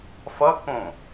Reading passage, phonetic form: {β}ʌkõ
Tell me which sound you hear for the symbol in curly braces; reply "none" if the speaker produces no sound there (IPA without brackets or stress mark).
f